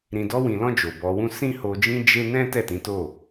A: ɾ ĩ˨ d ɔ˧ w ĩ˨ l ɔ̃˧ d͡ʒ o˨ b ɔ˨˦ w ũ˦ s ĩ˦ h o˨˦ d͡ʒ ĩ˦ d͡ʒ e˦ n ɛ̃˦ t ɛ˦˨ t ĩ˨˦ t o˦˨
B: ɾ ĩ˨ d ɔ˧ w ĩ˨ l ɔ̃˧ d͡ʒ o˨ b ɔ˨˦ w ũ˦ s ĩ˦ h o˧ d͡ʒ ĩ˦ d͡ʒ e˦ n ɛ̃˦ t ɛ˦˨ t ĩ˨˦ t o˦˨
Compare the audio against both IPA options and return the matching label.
B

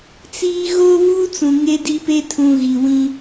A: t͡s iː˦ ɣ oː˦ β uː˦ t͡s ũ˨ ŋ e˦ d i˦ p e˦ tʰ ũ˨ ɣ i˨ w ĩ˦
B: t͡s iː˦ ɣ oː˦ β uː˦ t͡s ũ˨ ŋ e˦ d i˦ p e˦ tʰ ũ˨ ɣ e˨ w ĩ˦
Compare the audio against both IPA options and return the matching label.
A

